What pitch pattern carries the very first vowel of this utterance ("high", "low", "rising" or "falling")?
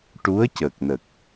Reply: rising